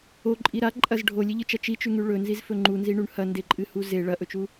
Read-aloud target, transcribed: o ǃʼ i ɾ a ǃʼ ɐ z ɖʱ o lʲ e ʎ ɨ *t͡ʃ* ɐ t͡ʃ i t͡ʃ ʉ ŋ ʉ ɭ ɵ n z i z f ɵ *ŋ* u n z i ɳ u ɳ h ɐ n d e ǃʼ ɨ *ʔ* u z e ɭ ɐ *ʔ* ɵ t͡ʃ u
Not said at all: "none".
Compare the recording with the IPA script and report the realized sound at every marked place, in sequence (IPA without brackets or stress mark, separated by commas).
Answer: t͡ʃ, ŋ͡ǃ, h, ʔ